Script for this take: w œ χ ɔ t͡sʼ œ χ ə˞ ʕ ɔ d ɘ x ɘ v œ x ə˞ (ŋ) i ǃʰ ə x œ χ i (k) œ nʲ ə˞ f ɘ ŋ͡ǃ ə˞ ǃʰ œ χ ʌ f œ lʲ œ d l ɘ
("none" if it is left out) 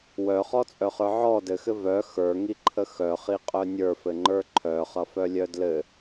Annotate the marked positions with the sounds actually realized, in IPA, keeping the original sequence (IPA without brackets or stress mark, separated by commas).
ŋ, qʼ